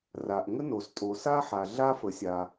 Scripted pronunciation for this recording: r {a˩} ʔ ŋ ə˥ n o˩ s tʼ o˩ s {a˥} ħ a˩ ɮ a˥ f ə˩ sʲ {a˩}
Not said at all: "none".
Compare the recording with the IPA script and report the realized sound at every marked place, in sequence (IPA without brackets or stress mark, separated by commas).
a˩, a˥, a˩